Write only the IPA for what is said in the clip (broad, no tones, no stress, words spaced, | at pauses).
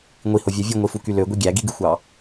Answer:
ŋʷihovʲæ vʲuŋʷifuky løɡʷi ɡʲæɡiɡɯxʷɑ